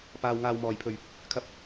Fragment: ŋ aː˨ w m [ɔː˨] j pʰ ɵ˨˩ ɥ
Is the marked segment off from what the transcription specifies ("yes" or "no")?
yes